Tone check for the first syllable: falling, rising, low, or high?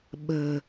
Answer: low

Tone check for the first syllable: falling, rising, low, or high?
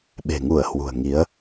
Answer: low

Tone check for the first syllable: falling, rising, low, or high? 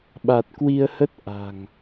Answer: low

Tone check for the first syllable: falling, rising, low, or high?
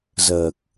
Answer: low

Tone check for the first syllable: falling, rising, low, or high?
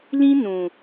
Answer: high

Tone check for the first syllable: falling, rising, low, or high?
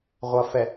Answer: low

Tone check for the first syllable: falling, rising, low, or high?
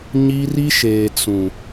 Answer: high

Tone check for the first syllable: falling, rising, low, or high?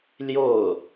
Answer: falling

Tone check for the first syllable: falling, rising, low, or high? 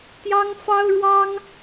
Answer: high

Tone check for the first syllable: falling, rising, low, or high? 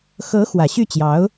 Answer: rising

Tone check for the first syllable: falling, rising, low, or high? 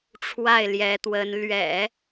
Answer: falling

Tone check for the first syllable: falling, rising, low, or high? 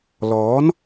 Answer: rising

